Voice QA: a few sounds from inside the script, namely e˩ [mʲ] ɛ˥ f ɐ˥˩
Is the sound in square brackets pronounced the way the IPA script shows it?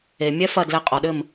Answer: yes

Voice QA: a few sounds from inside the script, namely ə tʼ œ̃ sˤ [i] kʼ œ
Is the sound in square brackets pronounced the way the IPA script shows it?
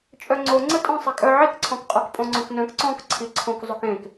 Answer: yes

